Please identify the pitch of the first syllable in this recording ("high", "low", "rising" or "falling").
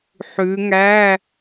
rising